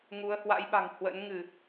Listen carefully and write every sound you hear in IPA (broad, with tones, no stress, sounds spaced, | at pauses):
ŋ u˨˦ ə̯ h w a̰˧˥ j ɓ a̤˨˩ ŋ h w ə̰˧˥ n ŋ ɨ˧˩˨